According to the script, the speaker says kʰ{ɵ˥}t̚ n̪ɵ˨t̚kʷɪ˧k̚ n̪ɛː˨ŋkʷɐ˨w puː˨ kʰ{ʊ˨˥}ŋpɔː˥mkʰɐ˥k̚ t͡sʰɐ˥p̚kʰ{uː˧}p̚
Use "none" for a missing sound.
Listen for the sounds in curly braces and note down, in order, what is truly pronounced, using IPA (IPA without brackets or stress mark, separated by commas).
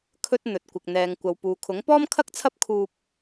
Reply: ɵ˥, ʊ˨˥, uː˧